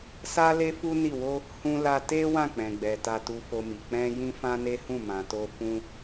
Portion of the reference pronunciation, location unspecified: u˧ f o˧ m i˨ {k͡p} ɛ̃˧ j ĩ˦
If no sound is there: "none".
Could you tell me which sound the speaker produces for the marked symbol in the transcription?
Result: k͡p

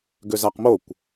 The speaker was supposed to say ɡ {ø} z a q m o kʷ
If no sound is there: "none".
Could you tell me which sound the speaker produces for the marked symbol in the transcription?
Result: ø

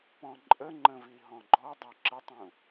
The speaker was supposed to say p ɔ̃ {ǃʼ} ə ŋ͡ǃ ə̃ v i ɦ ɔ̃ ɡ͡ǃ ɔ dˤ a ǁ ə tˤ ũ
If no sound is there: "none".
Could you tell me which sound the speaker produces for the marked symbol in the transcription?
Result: ǃʼ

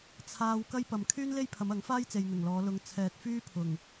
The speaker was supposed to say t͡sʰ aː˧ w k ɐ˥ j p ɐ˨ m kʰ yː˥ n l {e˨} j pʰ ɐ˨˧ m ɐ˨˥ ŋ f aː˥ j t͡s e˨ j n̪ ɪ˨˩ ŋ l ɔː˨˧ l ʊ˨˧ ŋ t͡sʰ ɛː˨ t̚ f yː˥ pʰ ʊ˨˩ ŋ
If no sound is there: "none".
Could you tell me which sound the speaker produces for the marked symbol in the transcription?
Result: e˥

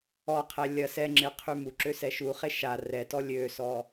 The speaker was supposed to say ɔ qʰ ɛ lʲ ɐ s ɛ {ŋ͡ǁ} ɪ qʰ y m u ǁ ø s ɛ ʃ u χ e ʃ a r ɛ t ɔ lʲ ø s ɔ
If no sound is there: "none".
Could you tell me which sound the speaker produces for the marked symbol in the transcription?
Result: ŋ͡ǁ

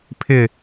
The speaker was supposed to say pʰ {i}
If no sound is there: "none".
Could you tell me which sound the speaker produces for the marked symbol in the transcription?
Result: ɪ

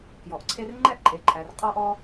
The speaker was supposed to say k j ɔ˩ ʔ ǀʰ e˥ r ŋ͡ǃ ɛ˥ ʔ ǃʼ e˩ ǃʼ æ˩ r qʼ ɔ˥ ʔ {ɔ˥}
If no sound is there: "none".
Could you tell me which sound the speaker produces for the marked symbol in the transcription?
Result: ɔ˥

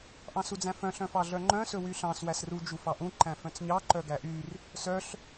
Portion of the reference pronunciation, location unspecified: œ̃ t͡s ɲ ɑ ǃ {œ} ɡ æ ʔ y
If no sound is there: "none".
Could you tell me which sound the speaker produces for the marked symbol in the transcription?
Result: œ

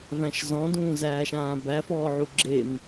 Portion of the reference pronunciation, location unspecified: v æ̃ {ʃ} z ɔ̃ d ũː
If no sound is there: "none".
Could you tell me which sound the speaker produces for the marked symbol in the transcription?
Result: ʃ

